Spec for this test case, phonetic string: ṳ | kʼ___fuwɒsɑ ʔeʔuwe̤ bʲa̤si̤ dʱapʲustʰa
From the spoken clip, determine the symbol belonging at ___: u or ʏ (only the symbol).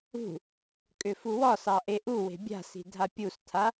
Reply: ʏ